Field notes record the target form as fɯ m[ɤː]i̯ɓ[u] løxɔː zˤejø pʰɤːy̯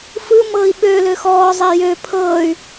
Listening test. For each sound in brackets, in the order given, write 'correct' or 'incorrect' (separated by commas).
correct, incorrect